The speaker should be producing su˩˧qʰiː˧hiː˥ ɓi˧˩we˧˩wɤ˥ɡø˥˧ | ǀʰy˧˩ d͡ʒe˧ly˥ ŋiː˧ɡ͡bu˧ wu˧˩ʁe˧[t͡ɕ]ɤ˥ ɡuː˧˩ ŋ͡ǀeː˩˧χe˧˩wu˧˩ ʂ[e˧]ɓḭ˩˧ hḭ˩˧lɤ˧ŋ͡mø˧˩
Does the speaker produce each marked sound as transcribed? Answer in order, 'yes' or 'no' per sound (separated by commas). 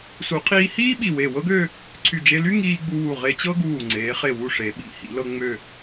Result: yes, no